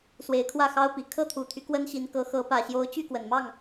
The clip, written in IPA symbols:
s w e˧˥ ɪ̯ kʰ w ä˥˩ x ɑ˥ ʊ̯ p i˨˩ kʰ ɤ˥˩ t̪ʰ u˨˩ t̪ʰ y˦ k w ə˥ n ɕ i˧˥ n k ɤ˧˥ x ɤ˧˥ p ä˨˩ ɕ j o˧˥ ʊ̯ t͡ɕ y˥˩ k w ə˨˩ n m ɑ˥˩ ŋ

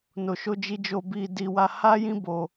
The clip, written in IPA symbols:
n o˨ ʃ o˧ d͡ʒ i˧ d͡ʒ o˧ b i˧ d i˧ w a˧ h a˦ j ĩ˦ b o˧

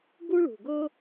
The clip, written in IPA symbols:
ɡ u˥ ɭ ṳ˨˩ ɡ ɤ˥

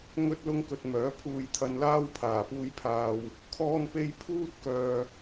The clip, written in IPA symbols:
ŋ ɵ˥ t̚ l ʊ˥ ŋ k ɵ˧ t̚ m œː˨˥ pʰ uː˧ j t̪ʰ ɐ˧ n l aː˥ w pʰ aː˨˩ p uː˧ j pʰ aː˨ w | kʰ ɔː˥ n p e˥ j pʰ uː˥ t̚ k œː˨

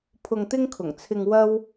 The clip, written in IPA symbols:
pʰ ʊ˧ ŋ t̪ ɪ˥ ŋ kʰ ʊ˨˩ ŋ t͡sʰ ɪ˧ ŋ w ɐ˥ w

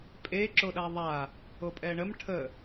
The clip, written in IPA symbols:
pʼ e ǁ o ɗ a ðˤ a | o pʼ ɛ ɳ ə m ʈʰ ə

